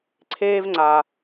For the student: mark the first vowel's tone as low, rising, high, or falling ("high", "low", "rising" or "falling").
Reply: high